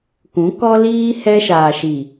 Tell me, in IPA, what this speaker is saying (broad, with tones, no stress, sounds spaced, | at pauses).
k ũ˨˦ k ɔ˦ l iː˦ h ɛ˦ ʃ aː˨ ʃ i˨